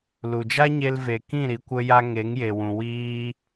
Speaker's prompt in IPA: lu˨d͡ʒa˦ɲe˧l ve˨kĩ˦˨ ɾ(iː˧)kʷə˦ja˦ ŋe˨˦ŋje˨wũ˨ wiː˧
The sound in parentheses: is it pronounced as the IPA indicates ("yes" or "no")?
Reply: no